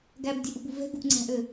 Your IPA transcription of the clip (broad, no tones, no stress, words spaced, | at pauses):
ɡæbdʲɛʔubu vɛ̤ɡṳʔŋ͡ǀæ̤ʔø